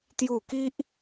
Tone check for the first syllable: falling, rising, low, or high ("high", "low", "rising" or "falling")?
falling